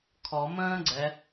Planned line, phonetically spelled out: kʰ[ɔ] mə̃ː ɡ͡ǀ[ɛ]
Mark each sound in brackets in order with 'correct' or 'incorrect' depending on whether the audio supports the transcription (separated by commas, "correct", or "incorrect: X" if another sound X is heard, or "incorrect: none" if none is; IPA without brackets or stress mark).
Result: correct, correct